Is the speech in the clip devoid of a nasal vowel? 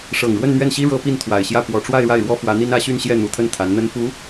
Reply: yes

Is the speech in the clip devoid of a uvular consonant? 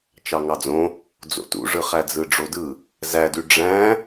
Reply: no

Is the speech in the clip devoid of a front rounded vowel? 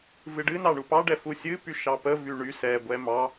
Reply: no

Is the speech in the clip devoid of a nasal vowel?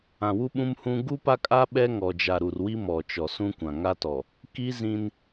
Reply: no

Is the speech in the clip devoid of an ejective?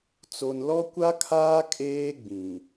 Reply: no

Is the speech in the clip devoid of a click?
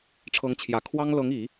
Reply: yes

